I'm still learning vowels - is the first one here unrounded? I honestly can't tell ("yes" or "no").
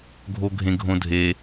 no